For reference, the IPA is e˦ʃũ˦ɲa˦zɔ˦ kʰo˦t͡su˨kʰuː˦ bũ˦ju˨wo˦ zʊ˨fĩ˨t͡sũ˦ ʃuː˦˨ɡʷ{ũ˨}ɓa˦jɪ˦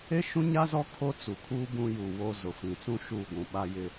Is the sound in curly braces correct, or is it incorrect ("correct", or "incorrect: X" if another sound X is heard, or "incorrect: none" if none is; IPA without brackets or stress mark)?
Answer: correct